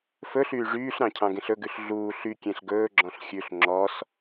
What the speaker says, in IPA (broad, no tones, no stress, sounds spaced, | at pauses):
f ɵ ɬ yː ʐ yː ɬ ɾ ɑ̃ cʰ ɑ̃ ɡ ẽ ɬ ɵ ɡ ʉ ɬ ɮ uː ɬ y kʲ ẽ ɬ ɡ ɵː ɡ͡ǁ ɔ̃ ɬ xʲ ʉ ɬ ŋ͡ǁ ɔ s